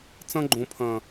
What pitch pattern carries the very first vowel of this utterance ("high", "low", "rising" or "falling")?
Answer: high